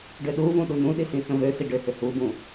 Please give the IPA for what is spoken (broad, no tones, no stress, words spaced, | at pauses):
ɖʏɗuvũ ɗunũɗi sĩt͡sə̃vøsi ɖʏhʏ hubũ